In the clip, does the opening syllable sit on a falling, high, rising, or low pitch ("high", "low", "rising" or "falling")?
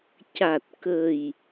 low